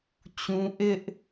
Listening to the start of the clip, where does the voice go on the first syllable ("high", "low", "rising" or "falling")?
high